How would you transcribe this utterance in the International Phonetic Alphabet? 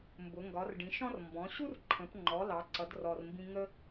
mbʊ˩˧ ŋɡɒ˩˧r ɖĩ˩˧ ʃɔ̃˥r mbɔ̃˩˧ɕu˥rǃʰə̃˩˧pŋ͡ǃɔ˩˧ lɑ˩˧ǀʌ˩˧d rɔ˩rmbĩ˧ ŋə˥

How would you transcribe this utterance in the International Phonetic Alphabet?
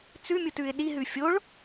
t͡sʉmʲutʉɪ̯ ɗiɦʉ fʲoɭ

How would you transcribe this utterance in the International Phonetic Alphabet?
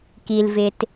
ki˨lvɪ˨t

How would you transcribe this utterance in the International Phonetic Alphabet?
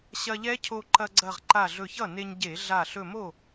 ɕɐ˧ʎɛ˦˥cʰo˧ ǃɐ˧ɡ͡ǀɐ˧˩ʁ ǃa˧˩ɮɵ˧˩çʌ˥˩ ne˧ɲɟe˧˩˧ɮa˧˩ ɬɵ˧˩mo˥˩

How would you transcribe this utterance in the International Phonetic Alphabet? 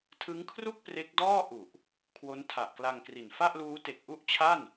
tʰɯ˦˥ŋkʰru˥˩k̚ pre˦˥k̚dɔː˥˩ ʔu˨˩ʔ | kʰwo˦˥ntʰa˨˩ʔkla˧ŋkri˨˩n fa˥˩ʔluː˦˥ te˨˩k̚ʔu˥˩ʔt͡ɕʰa˥˩n

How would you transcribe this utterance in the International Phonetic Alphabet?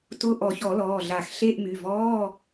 tʊ˧˥˧ ʔɔ˨˩˦çɔ˨˩˦lɔː˩˧˩ɮa˨˩˦x ɬe˧˥˧ʔmy˩˧˩vɔː˧˥˧

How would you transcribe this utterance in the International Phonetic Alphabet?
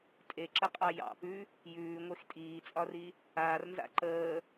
tʼeǁəqʼɑ jɑ̰pʉ | jʉːŋʷex tʼiːt͡sʼɒri | aːrnza̰ ǃəː

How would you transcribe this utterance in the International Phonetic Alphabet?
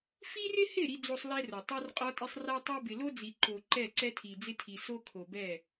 fi˦rɪ˦hɪ˦˨ ɾi˦d͡zo˦sˤlɛ˦ro˨ tˤa˦rqʼɔ˦tʼɪ˦sˤ ra˦tˤɛ˦ bɪ˨lo˦d͡zi˨ ǃo˨ ǃɛ˦˨ǀɛ˦tʰi˨ d͡zɪ˦tʰi˨ so˦kʰo˨bɛ˦˨

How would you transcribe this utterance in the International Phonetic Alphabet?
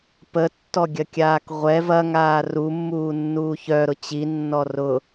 pətːɔɡʲɐkʲaːk ʁʷɛ vɐŋaː rumːuːnːuː çœɾʊ t͡ɕinːɔ rʊ

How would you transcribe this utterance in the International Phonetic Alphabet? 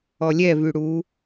ɔlʲɛvy ɽu

